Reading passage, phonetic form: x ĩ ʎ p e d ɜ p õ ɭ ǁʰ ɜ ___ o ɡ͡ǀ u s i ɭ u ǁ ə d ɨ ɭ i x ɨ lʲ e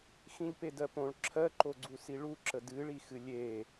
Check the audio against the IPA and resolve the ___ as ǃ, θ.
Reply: ǃ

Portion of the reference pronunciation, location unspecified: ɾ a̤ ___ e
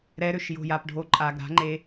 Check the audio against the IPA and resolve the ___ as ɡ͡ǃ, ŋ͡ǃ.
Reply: ŋ͡ǃ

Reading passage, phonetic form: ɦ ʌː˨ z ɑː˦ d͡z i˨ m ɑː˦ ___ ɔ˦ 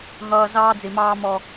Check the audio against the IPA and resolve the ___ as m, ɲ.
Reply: m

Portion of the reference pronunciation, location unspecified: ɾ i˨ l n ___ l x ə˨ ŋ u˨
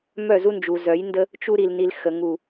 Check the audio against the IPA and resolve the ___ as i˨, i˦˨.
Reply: i˨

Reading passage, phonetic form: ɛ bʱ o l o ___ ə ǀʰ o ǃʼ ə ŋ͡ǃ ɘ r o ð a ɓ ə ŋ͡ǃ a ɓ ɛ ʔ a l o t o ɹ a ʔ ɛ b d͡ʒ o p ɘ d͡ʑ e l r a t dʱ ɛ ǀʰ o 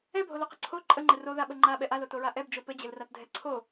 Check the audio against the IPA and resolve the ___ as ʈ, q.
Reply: q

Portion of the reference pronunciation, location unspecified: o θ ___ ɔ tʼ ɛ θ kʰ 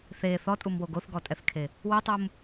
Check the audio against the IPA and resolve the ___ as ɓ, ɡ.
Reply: ɡ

